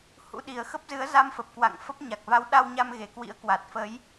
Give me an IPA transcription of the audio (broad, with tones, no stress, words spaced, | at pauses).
hṵ˧˥ɗi˨˩ə̯xə˦˥p̚zɨ˨˦ə̯ za˧mfə˨˩p̚ kwa̰˧˨ŋfə˦˥p̚ɲa˨˩k̚ va˨˦wɗa˧wɲa˧m ɣe˨˩kwḭ˧˥ə̯kwa˨˩t̚ fə˨˦j